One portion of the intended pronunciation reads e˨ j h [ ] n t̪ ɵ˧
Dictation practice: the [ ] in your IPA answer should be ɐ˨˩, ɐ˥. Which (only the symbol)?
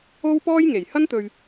ɐ˥